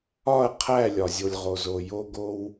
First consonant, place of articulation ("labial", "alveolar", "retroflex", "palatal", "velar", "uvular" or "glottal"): uvular